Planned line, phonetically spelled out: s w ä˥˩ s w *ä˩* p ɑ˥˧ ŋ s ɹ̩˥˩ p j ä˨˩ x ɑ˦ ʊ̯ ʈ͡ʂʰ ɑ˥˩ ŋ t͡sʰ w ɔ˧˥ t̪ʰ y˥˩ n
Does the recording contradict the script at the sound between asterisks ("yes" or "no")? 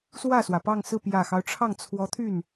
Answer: no